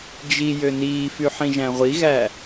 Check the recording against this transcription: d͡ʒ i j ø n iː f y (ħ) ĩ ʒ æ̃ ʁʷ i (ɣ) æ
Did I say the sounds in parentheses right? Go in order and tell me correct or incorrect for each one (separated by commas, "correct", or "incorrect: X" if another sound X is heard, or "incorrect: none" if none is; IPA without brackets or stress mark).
correct, correct